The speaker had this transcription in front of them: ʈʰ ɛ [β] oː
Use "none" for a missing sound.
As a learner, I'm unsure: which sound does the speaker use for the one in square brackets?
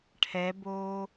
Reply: b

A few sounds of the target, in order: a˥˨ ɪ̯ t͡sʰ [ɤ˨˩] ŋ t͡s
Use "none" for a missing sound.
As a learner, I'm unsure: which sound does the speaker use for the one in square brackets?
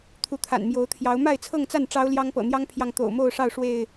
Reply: ɤ˥˨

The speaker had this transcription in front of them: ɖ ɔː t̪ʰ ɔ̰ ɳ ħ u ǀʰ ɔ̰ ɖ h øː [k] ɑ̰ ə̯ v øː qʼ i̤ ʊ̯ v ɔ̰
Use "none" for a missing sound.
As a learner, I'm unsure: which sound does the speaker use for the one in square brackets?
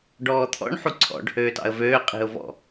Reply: t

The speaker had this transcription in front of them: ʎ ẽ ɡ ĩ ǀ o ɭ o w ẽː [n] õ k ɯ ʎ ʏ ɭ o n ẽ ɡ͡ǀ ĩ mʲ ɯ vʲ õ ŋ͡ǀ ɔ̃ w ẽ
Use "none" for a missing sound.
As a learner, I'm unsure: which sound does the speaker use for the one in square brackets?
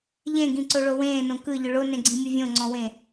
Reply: n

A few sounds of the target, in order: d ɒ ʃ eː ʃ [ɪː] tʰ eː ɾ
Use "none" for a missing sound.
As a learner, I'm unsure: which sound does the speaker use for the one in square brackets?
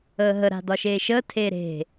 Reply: əː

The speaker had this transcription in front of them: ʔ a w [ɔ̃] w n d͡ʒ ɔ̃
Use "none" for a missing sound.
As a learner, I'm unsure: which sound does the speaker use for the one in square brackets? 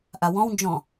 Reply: ɔ̃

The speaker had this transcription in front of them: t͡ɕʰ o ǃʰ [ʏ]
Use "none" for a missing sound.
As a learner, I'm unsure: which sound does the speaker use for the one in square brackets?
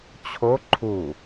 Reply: u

